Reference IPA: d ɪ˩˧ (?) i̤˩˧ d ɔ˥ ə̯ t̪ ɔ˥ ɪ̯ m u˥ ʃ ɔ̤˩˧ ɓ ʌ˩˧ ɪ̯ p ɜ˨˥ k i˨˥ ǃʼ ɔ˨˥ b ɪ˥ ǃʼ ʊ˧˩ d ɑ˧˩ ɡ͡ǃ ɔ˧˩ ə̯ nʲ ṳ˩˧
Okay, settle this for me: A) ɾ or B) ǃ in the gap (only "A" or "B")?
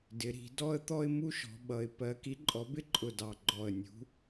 A